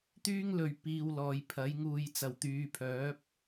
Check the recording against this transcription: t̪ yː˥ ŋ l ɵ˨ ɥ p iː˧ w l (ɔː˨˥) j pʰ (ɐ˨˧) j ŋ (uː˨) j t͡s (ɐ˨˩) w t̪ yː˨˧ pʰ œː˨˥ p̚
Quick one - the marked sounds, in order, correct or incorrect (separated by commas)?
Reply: incorrect, incorrect, correct, correct